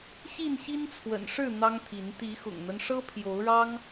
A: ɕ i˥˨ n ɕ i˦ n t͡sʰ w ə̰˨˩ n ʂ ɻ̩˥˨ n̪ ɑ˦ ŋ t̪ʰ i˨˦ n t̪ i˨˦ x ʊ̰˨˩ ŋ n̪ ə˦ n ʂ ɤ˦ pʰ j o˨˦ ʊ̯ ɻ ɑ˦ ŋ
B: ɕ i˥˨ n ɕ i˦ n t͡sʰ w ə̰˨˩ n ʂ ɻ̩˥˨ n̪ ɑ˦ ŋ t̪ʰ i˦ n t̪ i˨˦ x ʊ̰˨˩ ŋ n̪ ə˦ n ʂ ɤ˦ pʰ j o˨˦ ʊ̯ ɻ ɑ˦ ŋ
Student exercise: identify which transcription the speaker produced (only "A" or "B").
A